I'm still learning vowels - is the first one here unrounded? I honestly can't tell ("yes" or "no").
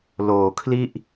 no